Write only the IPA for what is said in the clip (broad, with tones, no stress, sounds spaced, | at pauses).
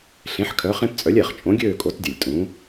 ɬ ẽ˨˥ ħ kʰ œ˨˥ χ ẽ˦ p t͡sʼ œ˨˥ lʲ ɛ˨˩ χ t͡ʃʼ õ˨˥ ɡʲ øː˦˨ kʼ o˨˥ t dʲ ə˨˩ lʲ tʼ ũː˨˥